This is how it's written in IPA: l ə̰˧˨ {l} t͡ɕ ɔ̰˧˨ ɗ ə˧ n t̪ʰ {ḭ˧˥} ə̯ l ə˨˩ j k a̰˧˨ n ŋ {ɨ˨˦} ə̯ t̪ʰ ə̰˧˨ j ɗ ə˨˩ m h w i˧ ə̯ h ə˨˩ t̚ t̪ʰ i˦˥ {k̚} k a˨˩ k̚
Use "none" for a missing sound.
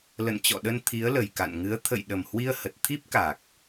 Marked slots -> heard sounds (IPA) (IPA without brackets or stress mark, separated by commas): n, i˨˦, ɨ˨˦, p̚